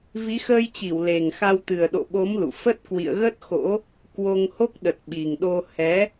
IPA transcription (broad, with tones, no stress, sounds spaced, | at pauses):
v i˨˦ x əː˧ j t͡ɕ i˧˩ w l e˨˩ ŋ x a˧ w t̪ ɨ˨˩ ə̯ ɗ o̰˧˨ ɓ o˨˦ m l ṵ˧˨ f ə˦˥ t̚ k w ḭ˧˨ ə̯ ɣ ə˦˥ t̚ x o̰˧˥ | k w o˧ ŋ h o˦˥ k̚ ɗ ə˨˩ t̚ ɓ i˨˩ ŋ ɗ o˧ h ɛ˨˦